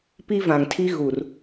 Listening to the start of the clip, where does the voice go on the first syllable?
high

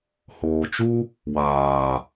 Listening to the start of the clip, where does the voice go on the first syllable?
low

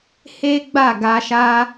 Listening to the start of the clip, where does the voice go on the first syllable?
high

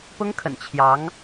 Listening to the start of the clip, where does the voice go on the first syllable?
high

